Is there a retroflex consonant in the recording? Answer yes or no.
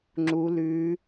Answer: no